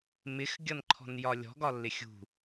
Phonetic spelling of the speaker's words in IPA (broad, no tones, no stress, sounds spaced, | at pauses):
m ɪ x ɡʲ ʌ n ǃʰ ɔ̤ n j ɒ lʲ ɔ̤ ɡ ɒ lː ɪ xʲ ṳ